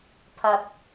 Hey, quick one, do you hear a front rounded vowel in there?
no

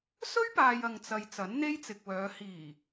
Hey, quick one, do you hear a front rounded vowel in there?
yes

